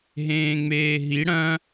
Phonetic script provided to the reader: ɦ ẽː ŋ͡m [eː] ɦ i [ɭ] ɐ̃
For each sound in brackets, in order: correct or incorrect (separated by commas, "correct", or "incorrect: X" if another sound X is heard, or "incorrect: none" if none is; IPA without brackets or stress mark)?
correct, incorrect: ɽ